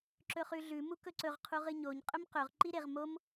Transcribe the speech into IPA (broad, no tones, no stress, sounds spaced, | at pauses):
ǁ ɵ χ ʉ ɮ ʉ m u k ɵ ǀ ɵ ʁ qʰ u ʁ ɨ ɲ o ɲ qʼ ɵ m q ɵ ʁ ǃ i ɾ e ʁ m o m